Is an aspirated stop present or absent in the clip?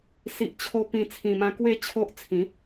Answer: present